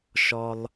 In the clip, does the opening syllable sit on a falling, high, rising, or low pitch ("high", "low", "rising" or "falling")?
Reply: high